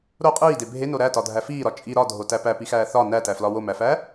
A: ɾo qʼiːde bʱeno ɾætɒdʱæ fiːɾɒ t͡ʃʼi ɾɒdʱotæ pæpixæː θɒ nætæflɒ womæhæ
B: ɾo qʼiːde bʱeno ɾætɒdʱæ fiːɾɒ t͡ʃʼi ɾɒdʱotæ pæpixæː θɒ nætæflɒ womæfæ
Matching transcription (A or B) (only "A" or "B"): B